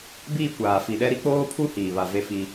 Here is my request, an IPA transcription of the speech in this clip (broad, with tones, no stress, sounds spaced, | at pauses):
b iː˦˨ kʷ aː˨ f i˨ ɗ ɛ˦ ɾ i˦ k͡p oː˦ pʰ u˦ h iː˨ β a˨ v e˦ f i˦